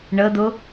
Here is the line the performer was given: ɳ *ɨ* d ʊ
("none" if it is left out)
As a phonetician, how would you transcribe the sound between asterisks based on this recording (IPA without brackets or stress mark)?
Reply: ə